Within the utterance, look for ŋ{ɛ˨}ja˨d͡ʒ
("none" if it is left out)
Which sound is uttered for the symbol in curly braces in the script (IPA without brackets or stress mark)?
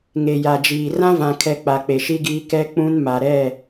e˨